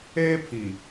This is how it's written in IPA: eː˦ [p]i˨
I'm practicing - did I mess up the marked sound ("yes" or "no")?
yes